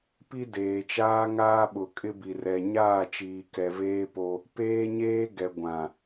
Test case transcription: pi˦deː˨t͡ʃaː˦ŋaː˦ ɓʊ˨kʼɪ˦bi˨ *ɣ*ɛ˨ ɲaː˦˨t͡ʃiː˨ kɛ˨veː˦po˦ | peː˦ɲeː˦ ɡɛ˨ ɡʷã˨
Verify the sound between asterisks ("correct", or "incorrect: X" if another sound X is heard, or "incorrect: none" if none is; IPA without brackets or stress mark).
incorrect: r